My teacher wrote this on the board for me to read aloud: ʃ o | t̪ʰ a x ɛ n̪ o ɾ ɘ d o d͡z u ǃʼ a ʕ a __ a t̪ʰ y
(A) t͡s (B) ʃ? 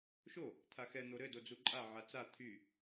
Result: A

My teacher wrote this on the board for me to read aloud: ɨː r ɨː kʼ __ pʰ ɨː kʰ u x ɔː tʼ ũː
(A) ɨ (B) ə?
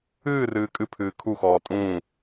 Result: A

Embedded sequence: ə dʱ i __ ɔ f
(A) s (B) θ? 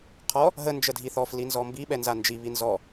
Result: B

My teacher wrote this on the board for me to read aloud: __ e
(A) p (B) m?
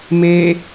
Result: B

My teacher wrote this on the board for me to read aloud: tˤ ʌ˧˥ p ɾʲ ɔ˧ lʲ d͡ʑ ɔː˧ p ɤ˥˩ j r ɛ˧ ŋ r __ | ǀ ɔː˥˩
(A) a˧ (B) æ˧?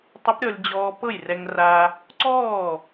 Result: A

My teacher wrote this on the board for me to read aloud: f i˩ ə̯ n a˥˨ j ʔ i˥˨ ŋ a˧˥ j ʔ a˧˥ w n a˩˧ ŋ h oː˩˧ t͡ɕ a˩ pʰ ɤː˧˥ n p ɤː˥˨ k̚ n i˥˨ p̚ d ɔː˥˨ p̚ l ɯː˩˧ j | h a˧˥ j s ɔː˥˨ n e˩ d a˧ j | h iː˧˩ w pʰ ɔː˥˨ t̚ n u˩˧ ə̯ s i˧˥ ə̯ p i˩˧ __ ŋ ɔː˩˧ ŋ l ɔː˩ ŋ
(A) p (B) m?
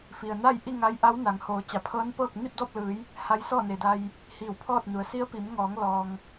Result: B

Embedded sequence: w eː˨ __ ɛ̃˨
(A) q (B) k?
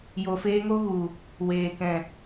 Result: B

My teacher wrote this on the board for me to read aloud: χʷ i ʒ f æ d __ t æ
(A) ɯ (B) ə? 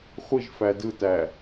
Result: A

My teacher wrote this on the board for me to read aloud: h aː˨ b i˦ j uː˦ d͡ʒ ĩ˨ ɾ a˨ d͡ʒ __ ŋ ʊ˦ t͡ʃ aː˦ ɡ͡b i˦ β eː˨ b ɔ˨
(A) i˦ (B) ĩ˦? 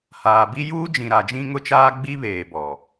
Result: B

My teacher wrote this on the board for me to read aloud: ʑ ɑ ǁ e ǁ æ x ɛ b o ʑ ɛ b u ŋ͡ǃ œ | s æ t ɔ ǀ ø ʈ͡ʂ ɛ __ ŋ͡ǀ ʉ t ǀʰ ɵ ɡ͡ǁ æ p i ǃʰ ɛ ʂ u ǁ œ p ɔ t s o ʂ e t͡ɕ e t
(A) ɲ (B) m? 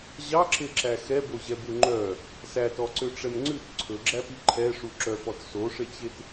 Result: B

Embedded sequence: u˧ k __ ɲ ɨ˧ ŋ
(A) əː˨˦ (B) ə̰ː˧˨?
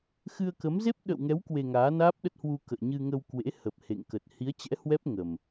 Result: B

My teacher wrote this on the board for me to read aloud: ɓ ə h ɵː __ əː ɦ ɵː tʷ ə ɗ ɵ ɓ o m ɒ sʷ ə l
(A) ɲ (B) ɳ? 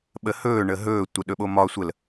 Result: B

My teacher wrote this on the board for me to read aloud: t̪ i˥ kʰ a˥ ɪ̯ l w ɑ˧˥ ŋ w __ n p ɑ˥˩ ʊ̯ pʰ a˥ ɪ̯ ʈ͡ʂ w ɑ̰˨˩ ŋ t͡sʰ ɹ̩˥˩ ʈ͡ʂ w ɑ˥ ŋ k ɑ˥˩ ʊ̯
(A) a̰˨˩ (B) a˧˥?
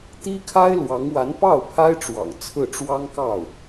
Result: B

